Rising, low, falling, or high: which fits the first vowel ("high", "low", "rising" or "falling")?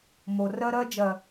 low